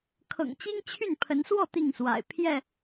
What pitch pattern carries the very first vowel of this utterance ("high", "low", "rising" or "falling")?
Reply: low